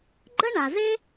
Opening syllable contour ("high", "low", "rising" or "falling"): high